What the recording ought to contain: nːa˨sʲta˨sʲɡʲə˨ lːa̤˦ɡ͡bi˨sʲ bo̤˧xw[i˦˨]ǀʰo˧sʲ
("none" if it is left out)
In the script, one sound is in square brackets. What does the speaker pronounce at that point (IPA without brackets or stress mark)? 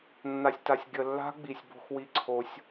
i˧